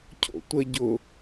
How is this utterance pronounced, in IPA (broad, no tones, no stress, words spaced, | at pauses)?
cʰo̰tʷə ɟʊ